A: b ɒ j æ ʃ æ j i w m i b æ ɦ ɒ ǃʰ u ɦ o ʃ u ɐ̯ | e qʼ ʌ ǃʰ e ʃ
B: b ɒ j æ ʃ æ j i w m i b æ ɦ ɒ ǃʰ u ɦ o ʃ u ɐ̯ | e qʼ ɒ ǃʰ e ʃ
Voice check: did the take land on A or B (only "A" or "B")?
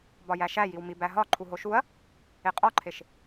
B